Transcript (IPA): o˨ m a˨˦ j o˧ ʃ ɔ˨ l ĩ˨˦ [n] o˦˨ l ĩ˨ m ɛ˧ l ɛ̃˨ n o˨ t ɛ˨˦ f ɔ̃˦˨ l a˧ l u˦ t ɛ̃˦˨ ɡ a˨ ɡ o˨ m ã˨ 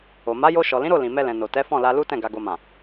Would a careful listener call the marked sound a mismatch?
yes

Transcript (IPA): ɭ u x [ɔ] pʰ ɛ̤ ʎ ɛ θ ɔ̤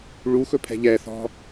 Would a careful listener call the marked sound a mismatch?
yes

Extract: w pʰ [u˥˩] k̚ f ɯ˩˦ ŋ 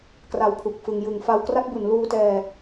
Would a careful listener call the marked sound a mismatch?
yes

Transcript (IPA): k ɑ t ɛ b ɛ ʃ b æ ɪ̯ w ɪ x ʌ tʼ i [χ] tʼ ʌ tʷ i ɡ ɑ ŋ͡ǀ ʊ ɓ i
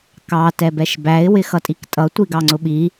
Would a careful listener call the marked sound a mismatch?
yes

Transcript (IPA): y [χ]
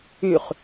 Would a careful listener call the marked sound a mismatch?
no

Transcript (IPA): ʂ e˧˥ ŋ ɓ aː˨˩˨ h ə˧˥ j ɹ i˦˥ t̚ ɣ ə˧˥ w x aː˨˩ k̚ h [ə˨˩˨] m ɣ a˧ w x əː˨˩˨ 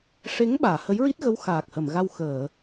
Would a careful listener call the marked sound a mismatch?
no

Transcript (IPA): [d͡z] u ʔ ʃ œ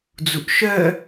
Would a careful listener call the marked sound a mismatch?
no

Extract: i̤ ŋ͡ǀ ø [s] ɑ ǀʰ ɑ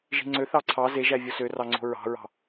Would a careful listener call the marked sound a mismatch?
yes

